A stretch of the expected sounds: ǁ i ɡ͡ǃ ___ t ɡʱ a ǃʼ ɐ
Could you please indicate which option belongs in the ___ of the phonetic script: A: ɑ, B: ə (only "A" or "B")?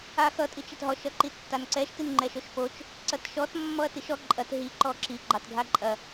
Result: A